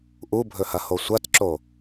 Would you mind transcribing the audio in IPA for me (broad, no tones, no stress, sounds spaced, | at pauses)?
ʔ u bʱ ɵ h ɐ h o sʷ ɐ t ǁ o